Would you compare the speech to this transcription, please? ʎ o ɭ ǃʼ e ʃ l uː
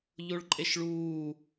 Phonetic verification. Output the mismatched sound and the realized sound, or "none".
l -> ɭ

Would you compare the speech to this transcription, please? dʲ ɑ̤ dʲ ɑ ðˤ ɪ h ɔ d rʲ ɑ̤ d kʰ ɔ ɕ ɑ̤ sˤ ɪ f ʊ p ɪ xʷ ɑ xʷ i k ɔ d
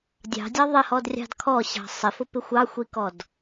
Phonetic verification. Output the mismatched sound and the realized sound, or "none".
none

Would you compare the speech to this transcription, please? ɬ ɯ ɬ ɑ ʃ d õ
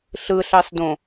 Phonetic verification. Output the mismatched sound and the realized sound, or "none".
ʃ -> s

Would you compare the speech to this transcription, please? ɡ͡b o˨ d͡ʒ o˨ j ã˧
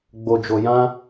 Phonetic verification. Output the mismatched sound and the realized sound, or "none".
none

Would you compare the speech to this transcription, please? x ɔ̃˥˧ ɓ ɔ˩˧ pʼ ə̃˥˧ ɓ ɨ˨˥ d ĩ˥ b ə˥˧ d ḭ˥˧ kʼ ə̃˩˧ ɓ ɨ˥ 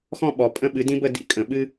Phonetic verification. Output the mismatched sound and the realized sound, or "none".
none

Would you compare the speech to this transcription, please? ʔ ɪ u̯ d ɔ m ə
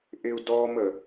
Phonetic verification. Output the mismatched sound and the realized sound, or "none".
none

